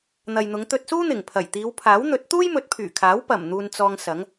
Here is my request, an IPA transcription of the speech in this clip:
n̪ ɐ˨ j n̪ ʊ˨˧ ŋ t̪ ɵ˧ t̚ s uː˥ n̪ ɪ˨˩ ŋ pʰ ɐ˨˩ j t̪ iː˨˧ w pʰ aː˨˥ w n̪ ɵ˨˥ t̚ t̪ uː˥ j m ɵ˨˥ t̚ pʰ yː˨˩ kʰ aː˨˥ w p ɐ˨˩ m n̪ uː˨ n t͡s ɔː˧ ŋ s ɐ˨˥ ŋ

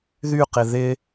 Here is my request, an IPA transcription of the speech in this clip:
ð y q ɪ ð ɪ

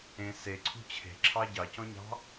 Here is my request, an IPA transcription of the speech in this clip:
ẽ s e ǀʰ ṳ t͡ɕʰ e̤ ǁʰ ɑ ɟ ɑ c ɔ̃ ɲ ɑ̤

